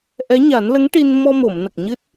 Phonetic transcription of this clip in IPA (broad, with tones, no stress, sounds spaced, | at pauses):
ʔ ɛ˧˥ ɲ a˨˩˦ n l ə˧˥ ŋ ʈ i˧ n m ɔ˧ m o˨˩˨ m n ə˨˩ k̚ ɲ ɨ˦˥ t̚